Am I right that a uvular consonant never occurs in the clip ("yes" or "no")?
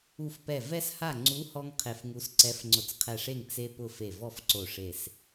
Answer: no